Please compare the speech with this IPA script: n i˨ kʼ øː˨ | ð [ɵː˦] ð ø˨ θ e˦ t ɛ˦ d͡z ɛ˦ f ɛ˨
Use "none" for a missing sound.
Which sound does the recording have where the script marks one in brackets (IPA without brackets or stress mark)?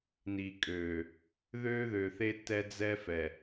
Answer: øː˦